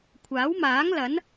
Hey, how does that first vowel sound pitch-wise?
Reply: rising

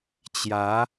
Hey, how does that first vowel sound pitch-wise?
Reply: rising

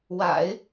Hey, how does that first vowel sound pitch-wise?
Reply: low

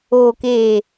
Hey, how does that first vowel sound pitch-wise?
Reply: low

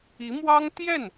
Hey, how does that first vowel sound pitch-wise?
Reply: rising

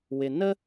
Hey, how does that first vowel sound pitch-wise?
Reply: low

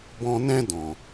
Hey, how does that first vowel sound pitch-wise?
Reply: high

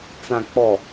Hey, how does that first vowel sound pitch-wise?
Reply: low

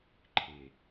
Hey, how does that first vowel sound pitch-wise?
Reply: low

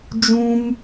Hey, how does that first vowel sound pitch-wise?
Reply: high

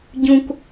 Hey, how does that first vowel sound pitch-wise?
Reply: high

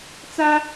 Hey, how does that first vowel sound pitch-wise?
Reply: high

